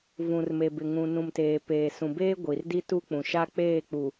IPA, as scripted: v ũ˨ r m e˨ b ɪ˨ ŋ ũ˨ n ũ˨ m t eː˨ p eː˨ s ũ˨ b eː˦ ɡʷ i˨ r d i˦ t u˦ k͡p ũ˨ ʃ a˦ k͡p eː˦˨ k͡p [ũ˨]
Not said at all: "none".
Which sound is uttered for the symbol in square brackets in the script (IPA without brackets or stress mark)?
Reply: u˨